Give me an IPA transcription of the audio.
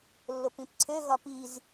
lːopĩpǀʰø ɣɒpiz

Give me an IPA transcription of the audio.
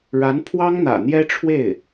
ɻa˧˥npʰwɑ˥ŋn̪ä̰˨˩ n̪jɛ˥ʈ͡ʂʰwe˥˩ɪ̯

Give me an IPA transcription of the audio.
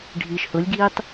ɖʱiːʃhʊlʲɡiːtˤ

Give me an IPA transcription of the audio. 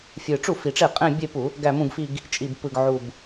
fʲɯ˨˩ʈ͡ʂu˥˩fi˨˩ʈ͡ʂe˥˩ qʼẽ˥˧bʲe˥˧pu˧˩˧ | ɡæ˥˧mũ˥˧ɡfi˥˧ɡ | t͡ʃʼi˨˩bpɯ˨˩ɡ ʕu˨˩b

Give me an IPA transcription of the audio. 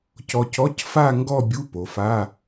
cɔ˧cɔ˧˥˧cfa˥˧ŋɡɔ˥˧ bʲu˧˥˧po˩˧fa˧˥˧

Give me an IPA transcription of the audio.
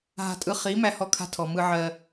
ɦa̤˧tʼɯ˧ χi˨˦ mæ˧hɔ˧kʰa̤˧tʰɔ˨ mɯ˧ʕɜ˧

